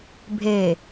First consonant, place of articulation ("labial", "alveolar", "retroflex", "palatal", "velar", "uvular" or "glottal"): labial